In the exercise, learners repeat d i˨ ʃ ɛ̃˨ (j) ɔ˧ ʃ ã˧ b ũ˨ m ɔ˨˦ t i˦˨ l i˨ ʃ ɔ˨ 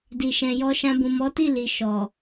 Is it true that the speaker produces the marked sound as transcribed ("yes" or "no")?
yes